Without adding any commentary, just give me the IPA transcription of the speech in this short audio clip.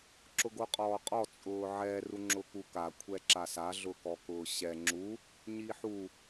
ǁ ʊ ɡ o qʼ ɔː qʼ ɔ t͡sʼ ʊː ʕ ɛ r u ŋ͡ǁ ʊ k u k a kʷʰ ɛ ǁ a s a ɮ ʊ k ɔ k ʊː ɕ ɛ ŋ͡ǁ u | ɲ i ħ u

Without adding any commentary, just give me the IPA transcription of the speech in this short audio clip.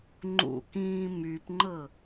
ŋ͡ǃ ṵ k ĩː m y p ŋ͡ǃ ɤ

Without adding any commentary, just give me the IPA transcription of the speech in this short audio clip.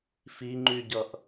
f i ŋ͡ǃ y ɟ ʌ ʔ

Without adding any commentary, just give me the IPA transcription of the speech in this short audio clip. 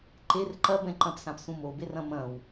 ǃ e r ǃ ɐ b ɛ̃ ǃ ɐ̃ p s ã p s ũ m o b e r ɐ̃ m ɐ̃ w

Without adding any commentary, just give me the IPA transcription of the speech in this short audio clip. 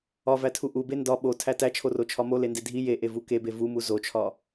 ɒ v æ tʰ u ʔ u b e n d ɒ ɓ o tʰ æ t æ t͡ʃʰ o r o t͡ʃʰ ɒ m o l e n d e dʱ i j e ʔ e v u k e b e v u m u z o t͡ʃʰ ɒ

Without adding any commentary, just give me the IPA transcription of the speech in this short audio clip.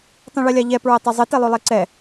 tˤ ĩ ɭ ɛ lʲ a ʎ ɛ p ɹ ɛ tˤ ɐ zˤ ɘ t e lˠ o lˠ e ǀ ɛ

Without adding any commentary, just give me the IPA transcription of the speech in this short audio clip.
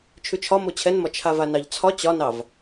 t͡ʃʰ ʉ t͡ʃʰ ɒ m o t͡ɕʰ ɛ n m ɒ t͡ʃʰ a v a n ɑ ʎ t͡sʰ ɒ t͡ɕ ɒ n ɑ v

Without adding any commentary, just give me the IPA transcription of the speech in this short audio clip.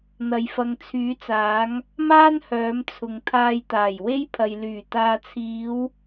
n̪ ɐ˨ j f ɐ˨ ŋ t͡sʰ yː˨˧ t͡s aː˨˧ ŋ | m aː˥ n h œː˨˧ m t͡sʰ ʊ˨ ŋ t̪ʰ aː˧ j t̪ aː˨˩ j w e˥ j pʰ ɐ˨ j l yː˨˩ t̪ aː˨ t͡sʰ iː˨˧ w

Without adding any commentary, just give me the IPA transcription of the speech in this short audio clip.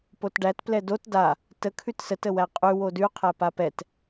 p o t ɖ æ t p l ɛ d o t d a | t ə kʰ ʉ t s ə t ə w æ qʼ ʉ w o d ʉ qʰ æ p a p ɛ t

